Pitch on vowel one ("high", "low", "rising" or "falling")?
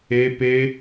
high